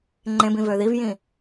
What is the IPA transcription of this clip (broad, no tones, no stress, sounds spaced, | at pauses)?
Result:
ŋ͡ǃ ẽ b ĩ v ø ð i v j ĩ